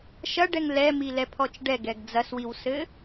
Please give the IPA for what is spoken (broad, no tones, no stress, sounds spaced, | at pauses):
ʃ ɐ ɖ ɛ ŋ l ɛ m i l ɛ pʰ ɔ t͡ʃ ɖ ɛ ɡ ɛ ɡ d͡z ɐ s w i w s ɘ